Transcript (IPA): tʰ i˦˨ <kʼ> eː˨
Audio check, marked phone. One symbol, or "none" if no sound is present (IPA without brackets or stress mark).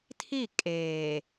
kʼ